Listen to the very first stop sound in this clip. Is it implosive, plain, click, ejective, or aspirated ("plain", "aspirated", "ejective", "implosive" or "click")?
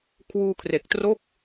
aspirated